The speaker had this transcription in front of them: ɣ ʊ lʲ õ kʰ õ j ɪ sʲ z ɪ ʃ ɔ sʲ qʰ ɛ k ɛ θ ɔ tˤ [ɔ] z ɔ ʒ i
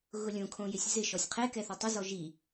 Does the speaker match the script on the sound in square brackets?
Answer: no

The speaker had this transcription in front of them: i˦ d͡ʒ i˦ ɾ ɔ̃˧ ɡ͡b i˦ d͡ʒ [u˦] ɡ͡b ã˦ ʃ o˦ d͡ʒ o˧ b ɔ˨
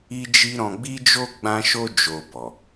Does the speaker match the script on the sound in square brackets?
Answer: no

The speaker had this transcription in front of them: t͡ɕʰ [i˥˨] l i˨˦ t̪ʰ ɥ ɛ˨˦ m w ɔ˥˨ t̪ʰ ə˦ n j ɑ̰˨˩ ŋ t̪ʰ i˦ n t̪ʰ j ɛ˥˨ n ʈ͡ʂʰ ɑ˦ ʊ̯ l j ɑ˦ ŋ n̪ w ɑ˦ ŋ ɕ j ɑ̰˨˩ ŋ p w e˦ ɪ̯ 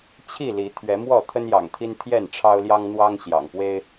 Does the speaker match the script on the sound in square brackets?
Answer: yes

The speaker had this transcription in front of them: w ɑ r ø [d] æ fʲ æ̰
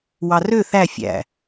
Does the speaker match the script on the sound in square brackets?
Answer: no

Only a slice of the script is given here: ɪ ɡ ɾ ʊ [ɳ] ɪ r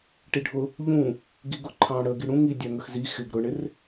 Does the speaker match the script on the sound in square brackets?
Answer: yes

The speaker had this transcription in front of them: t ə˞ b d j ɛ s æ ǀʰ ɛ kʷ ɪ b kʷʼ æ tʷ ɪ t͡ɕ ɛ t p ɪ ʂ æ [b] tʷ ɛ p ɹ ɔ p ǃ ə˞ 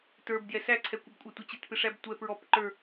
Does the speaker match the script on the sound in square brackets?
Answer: yes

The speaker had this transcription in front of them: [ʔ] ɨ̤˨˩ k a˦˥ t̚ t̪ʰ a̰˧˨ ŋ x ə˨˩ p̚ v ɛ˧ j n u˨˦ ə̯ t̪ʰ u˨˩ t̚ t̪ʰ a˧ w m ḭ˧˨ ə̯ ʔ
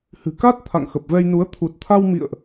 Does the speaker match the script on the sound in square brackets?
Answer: no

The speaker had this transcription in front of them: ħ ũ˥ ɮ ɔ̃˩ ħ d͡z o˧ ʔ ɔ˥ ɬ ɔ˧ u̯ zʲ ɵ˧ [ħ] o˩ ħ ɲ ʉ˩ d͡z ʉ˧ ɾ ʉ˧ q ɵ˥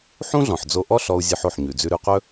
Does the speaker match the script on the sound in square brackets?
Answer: yes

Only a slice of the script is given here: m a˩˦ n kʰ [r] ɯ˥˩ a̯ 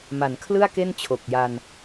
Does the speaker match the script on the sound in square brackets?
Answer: no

